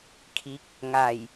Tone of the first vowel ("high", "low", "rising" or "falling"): rising